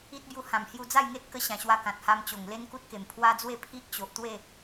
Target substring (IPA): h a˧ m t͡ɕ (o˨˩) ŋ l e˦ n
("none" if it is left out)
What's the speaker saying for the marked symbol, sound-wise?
o˨˩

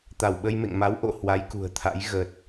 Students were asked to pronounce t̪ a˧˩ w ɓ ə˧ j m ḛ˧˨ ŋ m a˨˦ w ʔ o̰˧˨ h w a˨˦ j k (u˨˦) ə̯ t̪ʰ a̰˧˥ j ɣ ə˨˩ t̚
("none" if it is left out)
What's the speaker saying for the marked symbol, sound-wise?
ṳ˨˩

